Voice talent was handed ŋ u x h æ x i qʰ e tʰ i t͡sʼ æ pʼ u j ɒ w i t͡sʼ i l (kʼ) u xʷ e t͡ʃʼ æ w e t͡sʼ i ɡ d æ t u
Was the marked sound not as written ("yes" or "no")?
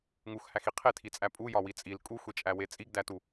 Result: no